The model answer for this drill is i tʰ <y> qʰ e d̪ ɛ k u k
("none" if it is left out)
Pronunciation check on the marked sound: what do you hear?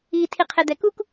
i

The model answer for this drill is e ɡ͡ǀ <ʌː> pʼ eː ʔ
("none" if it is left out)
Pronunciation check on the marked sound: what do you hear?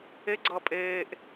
ʌː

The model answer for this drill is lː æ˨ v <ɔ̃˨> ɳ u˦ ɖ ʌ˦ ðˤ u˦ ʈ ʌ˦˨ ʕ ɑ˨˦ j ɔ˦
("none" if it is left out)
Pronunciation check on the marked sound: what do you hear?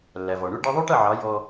ɔ˨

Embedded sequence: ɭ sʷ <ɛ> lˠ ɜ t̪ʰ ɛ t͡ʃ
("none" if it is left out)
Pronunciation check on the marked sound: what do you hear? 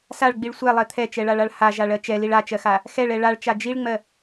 ɛ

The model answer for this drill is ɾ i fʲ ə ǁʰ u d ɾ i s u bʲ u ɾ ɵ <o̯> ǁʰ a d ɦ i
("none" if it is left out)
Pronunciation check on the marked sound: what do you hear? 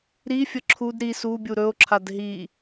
o̯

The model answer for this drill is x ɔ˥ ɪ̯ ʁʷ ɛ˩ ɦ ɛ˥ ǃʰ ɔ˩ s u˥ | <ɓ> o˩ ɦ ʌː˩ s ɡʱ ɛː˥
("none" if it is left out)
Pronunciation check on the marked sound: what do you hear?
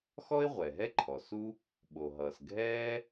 ɓ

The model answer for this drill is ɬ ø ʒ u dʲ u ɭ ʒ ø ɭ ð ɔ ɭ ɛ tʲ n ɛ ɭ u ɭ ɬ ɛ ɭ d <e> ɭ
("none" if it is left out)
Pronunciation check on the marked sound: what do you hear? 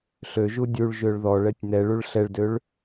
ø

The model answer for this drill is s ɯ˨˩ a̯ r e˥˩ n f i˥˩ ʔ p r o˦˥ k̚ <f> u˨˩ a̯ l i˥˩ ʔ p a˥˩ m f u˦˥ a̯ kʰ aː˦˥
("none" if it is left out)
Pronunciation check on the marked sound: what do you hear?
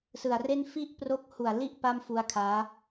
h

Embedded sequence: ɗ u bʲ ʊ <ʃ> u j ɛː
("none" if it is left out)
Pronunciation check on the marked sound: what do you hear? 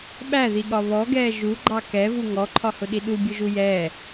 ʒ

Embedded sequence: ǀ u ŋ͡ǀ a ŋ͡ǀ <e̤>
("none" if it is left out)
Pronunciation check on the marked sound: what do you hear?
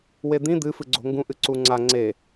e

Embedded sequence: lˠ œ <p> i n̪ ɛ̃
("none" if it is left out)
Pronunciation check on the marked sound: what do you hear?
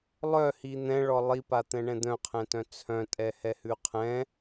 h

